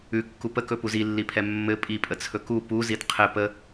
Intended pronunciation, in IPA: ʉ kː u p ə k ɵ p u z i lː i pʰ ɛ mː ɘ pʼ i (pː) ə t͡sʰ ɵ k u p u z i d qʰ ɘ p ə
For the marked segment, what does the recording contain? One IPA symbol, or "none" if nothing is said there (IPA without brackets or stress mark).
pʼ